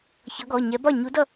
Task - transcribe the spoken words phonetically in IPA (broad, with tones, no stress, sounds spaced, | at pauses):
ç ʌ˨˥ ɡ ɔ˩˧˩ ɲ ɛ˨˥ b ɒ˥˩ ɲ u˨˥ d ʌ˥˩